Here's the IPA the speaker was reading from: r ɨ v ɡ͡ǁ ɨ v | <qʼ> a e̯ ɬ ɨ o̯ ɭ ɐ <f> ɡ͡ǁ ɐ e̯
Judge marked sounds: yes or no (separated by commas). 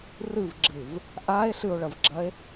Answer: no, no